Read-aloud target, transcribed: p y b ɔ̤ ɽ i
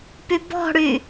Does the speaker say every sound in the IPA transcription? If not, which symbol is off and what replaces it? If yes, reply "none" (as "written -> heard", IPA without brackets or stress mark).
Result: i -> y